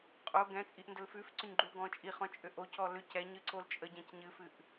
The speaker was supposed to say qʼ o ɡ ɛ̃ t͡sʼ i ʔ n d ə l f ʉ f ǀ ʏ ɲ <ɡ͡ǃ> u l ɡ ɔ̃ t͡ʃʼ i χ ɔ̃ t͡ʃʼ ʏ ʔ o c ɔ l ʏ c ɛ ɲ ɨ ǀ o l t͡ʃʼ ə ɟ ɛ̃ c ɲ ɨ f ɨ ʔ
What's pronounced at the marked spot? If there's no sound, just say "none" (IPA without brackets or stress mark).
ɡ͡ǃ